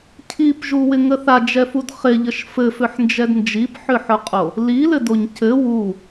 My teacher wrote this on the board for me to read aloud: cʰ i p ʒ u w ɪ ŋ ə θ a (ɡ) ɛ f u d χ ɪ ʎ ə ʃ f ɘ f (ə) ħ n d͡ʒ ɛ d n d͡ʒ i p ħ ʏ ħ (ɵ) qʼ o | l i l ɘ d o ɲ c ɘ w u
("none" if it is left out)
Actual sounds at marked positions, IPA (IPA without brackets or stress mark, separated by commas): d͡ʒ, ʏ, ɵ